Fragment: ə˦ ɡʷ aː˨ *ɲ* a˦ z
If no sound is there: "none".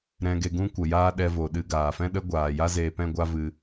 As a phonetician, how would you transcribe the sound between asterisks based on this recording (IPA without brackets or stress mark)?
j